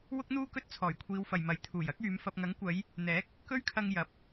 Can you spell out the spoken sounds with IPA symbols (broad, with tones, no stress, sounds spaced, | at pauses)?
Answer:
w ʊ˥ k̚ n̪ uː˥ k ɵ˥ t̚ t͡sʰ ɔː˨˩ j kʷʰ iː˨˧ w f ɐ˨ j m ɐ˨˥ j t̪ʰ uː˨˩ j ɐ˥ k̚ yː˨˧ m f ɐ˧ p̚ ŋ ɐ˨˥ ŋ kʷ ɐ˨˧ j | n̪ ɛː˨˥ k̚ | k ɵ˥ ɥ kʰ ɐ˧ ŋ j ɐ˨˥ p̚